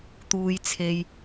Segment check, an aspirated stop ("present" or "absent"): present